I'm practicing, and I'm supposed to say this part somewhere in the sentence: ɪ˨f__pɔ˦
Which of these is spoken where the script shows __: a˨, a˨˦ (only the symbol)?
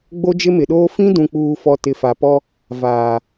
a˨